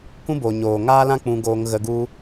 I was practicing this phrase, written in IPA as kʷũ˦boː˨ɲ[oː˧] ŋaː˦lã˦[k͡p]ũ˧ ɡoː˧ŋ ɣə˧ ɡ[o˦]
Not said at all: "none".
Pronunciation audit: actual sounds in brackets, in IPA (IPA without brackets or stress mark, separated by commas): oː˨, k͡p, u˦